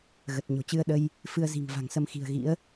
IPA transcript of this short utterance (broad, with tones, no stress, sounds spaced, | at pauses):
ɣ ə˨˩ t̚ ɲ o̤˨˩ t͡ɕ ɨ˧ ə̯ ɗ ə˧ j | f ɨ˧ ə̯ z i̤˨˩ ŋ v a̤˨˩ ŋ s ə˧ m x i̤˨˩ ə̯ ɣ ḭ˧˥ ə̯